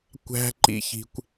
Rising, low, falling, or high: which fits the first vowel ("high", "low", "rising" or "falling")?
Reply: high